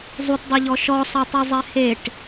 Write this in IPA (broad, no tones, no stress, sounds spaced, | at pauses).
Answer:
zˤ u t dˤ ɤ ʎ ɔ ʃ ɔ sˤ a tˤ ɤ zˤ ɛ h e ʈ